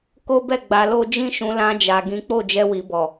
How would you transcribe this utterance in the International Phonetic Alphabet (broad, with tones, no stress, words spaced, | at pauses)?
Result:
ko˦bɛ˦˨ ɡ͡ba˧lo˦ d͡ʒĩ˦ʃũ˧ lã˧ d͡ʒa˨ɡĩ˨˦ k͡po˦˨d͡ʒɛ˧wi˨bɔ˨